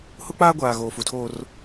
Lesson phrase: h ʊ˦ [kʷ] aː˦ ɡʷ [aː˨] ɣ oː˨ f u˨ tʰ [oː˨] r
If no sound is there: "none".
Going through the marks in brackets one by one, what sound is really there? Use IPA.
k͡p, aː˨, oː˦

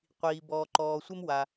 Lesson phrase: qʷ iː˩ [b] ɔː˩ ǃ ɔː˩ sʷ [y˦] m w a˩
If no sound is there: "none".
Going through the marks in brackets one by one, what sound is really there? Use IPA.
b, e˦

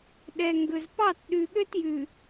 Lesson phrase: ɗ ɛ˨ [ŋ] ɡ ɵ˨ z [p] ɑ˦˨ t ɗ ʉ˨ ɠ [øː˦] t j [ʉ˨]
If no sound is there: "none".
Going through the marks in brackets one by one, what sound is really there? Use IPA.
ŋ, p, ø˦, ʉ˨

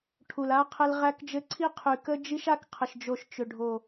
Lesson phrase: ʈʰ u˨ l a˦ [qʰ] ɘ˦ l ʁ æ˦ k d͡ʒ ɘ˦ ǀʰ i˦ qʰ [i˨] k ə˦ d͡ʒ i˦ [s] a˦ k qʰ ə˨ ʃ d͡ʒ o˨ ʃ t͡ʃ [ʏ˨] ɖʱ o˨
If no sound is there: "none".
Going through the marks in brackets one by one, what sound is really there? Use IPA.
qʰ, y˨, ʃ, ʏ˨

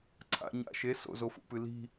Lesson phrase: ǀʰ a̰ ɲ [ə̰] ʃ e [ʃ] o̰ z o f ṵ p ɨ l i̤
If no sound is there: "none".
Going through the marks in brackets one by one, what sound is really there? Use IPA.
a̰, s

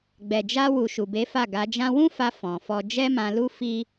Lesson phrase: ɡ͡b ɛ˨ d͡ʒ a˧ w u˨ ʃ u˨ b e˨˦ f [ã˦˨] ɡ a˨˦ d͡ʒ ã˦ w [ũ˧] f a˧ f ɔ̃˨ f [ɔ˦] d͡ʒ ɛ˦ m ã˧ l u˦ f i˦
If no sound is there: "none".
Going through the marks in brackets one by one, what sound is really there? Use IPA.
a˦˨, ũ˦, ɔ˧

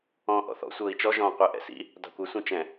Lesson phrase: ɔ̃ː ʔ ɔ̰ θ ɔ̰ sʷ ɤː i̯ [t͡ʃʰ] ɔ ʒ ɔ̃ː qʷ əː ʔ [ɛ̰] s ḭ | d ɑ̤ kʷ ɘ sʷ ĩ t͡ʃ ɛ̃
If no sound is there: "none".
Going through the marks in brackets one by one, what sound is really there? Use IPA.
t͡ʃ, ɛ̰

